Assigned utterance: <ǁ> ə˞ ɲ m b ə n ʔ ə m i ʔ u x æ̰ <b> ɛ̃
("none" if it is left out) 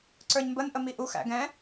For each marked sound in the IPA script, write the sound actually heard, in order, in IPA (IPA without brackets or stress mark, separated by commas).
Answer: ǀ, ɡ